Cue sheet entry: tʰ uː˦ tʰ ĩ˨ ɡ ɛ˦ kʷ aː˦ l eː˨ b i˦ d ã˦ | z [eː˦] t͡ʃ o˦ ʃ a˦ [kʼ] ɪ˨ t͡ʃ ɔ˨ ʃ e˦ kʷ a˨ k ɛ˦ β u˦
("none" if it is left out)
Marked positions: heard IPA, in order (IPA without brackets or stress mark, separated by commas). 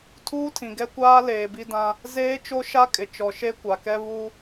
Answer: eː˦, kʼ